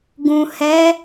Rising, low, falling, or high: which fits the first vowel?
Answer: low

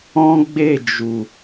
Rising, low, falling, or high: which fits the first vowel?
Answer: high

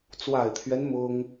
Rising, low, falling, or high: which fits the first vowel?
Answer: low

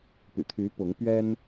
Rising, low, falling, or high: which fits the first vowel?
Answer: low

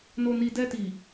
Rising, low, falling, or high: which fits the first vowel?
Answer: low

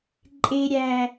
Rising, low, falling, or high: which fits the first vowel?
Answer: high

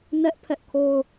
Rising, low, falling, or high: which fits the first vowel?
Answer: high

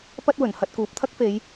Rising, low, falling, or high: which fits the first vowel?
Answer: high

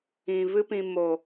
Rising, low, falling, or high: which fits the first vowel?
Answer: low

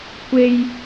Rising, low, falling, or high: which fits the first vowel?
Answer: low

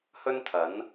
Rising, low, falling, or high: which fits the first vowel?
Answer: high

